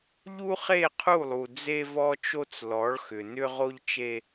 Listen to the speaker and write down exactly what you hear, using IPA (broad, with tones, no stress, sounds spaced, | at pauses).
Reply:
ʎ u˦ χ e˦˨ qʰ u˦˨ lˠ u˨ d͡z e˦ v ɔ˦ t͡ʃ o˦ t͡s l ɔ˨˦ ɭ x ʏ˨ n ʏ˦ ʁ o˦ ʎ t͡ʃ e˦